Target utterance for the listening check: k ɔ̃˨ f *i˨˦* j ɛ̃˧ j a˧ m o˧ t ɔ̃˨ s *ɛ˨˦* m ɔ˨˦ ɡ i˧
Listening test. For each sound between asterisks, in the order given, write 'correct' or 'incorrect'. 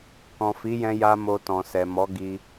correct, incorrect

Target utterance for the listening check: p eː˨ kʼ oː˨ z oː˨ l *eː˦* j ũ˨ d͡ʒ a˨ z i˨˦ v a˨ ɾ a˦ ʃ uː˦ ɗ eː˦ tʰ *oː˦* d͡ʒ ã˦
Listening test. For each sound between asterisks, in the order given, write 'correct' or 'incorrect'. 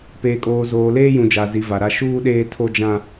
correct, incorrect

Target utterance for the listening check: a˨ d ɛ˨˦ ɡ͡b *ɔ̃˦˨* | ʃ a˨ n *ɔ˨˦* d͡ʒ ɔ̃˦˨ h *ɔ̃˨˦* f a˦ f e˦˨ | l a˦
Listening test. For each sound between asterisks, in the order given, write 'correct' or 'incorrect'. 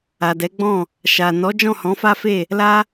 correct, correct, correct

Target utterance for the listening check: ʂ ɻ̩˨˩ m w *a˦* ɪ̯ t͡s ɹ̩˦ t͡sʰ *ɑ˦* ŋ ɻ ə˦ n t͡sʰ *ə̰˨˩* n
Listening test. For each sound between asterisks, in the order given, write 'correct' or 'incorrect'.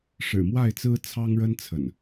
incorrect, correct, correct

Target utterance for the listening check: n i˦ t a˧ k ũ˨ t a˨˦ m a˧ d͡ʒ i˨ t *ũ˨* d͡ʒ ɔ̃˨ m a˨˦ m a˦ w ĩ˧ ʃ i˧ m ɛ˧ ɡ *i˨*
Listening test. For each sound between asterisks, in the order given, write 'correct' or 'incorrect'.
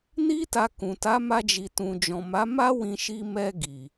correct, correct

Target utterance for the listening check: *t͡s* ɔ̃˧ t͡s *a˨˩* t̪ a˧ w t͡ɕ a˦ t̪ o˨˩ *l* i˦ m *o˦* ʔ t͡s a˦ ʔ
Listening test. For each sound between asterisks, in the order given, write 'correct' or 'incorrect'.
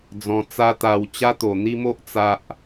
incorrect, incorrect, incorrect, correct

